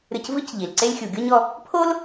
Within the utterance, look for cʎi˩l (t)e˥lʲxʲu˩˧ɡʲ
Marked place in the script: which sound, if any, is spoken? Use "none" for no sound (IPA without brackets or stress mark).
ǀ